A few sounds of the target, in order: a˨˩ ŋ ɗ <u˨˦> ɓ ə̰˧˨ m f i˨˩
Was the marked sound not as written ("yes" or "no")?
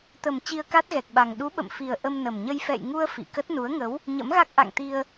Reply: no